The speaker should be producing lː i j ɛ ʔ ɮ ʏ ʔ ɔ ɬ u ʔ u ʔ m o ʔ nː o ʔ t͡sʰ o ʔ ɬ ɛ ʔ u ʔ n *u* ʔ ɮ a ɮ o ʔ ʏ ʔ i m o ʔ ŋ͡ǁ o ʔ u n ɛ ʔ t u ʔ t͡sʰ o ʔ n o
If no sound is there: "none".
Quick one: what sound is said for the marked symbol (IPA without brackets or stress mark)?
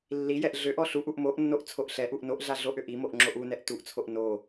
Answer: o